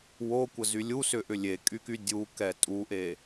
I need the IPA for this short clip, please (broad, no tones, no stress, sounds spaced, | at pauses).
w o kʷ ə z y lʲ u s ʏ ʔ ʏ lʲ e kʼ y k y dʲ u k ɛ tʼ u ʔ e